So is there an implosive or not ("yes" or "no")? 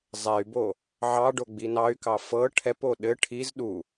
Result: yes